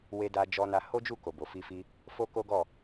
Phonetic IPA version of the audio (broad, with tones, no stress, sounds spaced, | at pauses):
w e˧ d a˧ d͡ʒ ɔ˧ n a˧ h o˦ d͡ʒ u˦˨ k o˨ b o˨ f i˧ f i˧ | f o˦ k o˦ ɡ ɔ˦˨